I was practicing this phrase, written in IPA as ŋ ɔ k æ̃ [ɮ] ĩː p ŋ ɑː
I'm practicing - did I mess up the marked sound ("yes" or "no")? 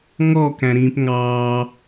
yes